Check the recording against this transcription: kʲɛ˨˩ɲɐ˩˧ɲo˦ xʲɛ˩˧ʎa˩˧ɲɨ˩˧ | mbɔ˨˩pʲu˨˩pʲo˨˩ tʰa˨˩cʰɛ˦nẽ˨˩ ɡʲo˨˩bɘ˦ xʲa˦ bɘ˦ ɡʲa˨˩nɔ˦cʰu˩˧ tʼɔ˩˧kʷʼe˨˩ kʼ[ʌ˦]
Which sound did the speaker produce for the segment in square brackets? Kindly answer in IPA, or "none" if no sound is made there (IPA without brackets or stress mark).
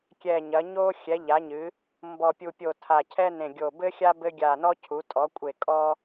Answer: ɔ˦